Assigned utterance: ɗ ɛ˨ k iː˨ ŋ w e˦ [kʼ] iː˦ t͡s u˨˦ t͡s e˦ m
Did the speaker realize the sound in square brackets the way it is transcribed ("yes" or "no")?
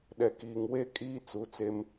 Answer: yes